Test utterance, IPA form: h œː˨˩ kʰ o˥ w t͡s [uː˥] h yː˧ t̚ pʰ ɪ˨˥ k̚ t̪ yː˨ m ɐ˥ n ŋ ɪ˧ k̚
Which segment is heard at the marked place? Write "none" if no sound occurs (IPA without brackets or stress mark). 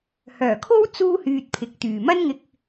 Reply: uː˥